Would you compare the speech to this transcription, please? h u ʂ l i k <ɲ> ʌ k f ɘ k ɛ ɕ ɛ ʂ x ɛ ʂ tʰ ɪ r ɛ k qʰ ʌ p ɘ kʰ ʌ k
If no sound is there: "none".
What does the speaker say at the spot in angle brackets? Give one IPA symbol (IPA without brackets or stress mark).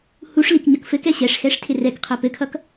ɲ